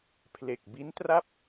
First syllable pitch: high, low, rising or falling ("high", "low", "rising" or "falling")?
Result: low